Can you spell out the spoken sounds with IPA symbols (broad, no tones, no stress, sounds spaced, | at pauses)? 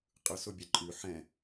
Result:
qʼ ɯ s ʊ bʲ ɛ ǃʼ ʉ ħ ɛ̃